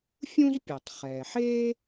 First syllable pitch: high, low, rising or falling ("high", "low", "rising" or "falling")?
high